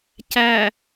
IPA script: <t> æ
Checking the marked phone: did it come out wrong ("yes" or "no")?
yes